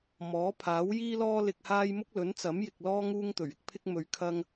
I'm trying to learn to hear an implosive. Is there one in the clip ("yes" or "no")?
no